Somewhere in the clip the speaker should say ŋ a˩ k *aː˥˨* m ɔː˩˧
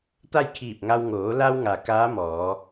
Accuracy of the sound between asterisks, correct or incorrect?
incorrect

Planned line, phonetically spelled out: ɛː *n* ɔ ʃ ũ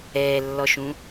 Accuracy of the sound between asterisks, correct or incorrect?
incorrect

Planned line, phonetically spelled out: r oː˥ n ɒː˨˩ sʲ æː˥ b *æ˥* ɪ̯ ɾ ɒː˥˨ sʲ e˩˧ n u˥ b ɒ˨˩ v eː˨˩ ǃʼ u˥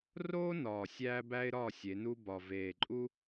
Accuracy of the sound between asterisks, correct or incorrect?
correct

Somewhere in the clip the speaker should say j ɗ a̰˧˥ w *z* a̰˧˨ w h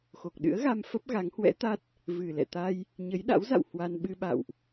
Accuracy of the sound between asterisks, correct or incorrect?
correct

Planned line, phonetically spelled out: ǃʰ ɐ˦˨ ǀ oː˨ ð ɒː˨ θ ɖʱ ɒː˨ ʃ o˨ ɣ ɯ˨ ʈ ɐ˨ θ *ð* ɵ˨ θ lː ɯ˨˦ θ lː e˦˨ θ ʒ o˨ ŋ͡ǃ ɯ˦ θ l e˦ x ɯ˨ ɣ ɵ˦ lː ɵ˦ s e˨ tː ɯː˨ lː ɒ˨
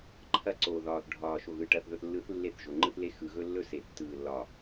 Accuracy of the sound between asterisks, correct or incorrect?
correct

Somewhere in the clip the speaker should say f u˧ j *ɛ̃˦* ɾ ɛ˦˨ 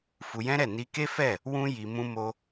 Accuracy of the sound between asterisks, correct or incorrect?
correct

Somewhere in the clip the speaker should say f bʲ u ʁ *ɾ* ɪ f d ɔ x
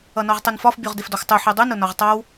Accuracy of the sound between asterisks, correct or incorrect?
incorrect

